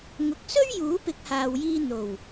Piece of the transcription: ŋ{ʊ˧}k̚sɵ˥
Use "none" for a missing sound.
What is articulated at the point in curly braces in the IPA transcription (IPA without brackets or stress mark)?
ʊ˨